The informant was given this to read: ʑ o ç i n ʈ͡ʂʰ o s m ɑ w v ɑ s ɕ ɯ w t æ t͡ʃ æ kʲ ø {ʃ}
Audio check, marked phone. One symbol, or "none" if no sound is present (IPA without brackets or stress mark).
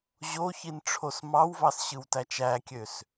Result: s